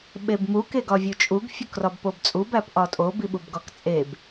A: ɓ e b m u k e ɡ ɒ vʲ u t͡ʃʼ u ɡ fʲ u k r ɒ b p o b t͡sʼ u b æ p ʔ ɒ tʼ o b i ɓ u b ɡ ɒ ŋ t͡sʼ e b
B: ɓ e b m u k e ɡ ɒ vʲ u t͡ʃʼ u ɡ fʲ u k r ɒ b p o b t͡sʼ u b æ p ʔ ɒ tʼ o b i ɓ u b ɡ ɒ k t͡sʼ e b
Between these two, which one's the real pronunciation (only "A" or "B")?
B